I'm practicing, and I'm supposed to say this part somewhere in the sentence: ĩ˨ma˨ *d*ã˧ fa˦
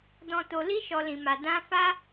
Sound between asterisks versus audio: correct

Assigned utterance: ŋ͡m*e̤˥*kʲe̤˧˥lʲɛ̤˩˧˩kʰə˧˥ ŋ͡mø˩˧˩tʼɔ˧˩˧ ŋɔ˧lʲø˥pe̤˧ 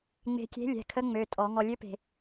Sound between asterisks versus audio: incorrect: e̤˧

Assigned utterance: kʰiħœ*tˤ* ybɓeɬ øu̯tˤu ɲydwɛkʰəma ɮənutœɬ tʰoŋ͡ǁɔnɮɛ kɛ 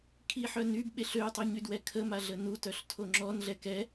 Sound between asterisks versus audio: incorrect: n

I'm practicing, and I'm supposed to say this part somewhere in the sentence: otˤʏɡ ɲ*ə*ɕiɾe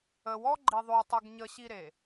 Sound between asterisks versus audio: correct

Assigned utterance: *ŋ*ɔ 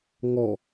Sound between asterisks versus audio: correct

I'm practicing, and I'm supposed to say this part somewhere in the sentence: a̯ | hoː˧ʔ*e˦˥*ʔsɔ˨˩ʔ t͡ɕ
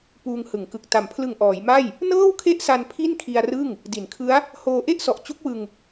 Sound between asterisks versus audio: incorrect: e˥˩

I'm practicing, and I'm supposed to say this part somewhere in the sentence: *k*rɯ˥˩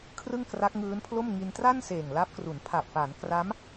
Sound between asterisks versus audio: incorrect: kʰ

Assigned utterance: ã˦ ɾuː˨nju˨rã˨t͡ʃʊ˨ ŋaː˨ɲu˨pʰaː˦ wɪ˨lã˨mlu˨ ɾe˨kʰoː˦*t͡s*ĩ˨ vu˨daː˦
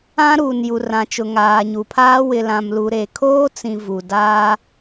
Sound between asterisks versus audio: correct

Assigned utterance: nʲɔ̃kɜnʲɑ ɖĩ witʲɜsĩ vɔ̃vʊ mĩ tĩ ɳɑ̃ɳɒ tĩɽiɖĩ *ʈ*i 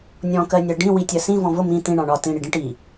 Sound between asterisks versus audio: correct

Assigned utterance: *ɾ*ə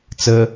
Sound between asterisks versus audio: incorrect: t͡s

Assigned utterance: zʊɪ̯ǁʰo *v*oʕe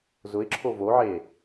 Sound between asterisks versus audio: correct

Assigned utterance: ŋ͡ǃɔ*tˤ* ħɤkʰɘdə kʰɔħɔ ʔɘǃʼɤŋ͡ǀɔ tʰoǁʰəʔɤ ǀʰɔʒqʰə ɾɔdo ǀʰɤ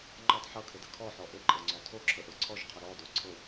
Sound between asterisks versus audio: correct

